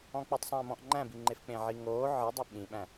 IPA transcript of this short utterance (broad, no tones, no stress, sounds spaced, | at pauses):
ɔ̃ k͡p u tˤ sˤ æ̃ m ɔ̃ ʔ ŋ͡ǃ æ̃ b i ŋ͡ǃ e f k͡p ẽ ʕ i ŋ oː ʕ ɨ dˤ ɘ ɓ ĩ ɓ æ̃